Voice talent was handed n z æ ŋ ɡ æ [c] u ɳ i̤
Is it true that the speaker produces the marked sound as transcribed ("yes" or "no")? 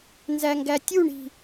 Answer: no